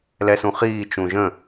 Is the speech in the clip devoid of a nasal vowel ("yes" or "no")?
no